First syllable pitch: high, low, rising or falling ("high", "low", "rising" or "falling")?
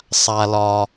high